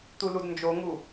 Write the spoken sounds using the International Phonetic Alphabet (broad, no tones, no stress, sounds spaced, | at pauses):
t̪ u l u d n d͡ʒ o ŋ u